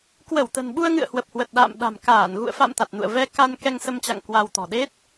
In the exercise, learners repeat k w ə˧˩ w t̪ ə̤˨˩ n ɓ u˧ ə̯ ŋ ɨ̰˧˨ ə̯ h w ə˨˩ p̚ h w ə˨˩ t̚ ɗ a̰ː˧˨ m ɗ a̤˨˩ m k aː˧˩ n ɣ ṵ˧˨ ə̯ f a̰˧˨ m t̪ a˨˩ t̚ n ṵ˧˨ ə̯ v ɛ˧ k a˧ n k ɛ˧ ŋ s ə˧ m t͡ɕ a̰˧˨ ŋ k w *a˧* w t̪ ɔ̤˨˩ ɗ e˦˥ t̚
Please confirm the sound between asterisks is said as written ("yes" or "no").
yes